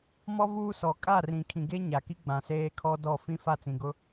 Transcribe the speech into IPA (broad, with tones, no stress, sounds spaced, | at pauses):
m ɔ˦ v uː˦ s ɔ˨ kʼ a˦˨ r ĩ˨ kʰ ĩ˨ ɡ e˦ ɲ a˨ k i˦ ɡ͡b ã˨ s eː˦ kʰ ɔ˦ d ɔ˦˨ f ĩ˦ f a˦˨ t͡s ĩ˨ ɡ ʊ˦